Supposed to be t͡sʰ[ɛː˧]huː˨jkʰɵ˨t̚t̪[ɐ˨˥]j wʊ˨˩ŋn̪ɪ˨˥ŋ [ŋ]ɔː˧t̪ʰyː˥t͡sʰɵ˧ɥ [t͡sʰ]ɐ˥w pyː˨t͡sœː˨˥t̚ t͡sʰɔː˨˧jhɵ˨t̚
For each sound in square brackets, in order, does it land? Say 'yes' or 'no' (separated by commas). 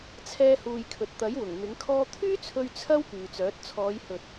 yes, yes, no, yes